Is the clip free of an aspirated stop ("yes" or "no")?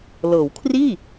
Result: no